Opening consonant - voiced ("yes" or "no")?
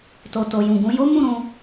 no